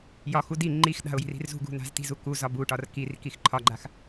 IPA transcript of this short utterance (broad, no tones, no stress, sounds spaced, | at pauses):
j ɒ x u d i ŋ͡ǃ i x ɗ a̤ ʊ̯ j i̤ r i̤ r z ṳ ɡ ṳ n a̤ z t i̤ z u k u z ɒ b u ʈ ɒ r k i r k i x ǃʰ ɒ ɡ͡ǃ a x